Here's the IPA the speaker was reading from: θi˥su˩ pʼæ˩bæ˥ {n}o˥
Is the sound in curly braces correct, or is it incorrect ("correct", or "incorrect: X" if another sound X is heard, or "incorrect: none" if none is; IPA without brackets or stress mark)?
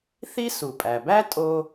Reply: incorrect: tʼ